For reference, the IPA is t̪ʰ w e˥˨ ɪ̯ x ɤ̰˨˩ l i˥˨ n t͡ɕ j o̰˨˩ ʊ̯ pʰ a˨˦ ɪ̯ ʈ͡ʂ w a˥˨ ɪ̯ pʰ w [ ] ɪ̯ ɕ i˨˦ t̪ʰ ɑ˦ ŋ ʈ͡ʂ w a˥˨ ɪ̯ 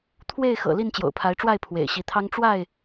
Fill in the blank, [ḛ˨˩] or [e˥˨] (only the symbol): ḛ˨˩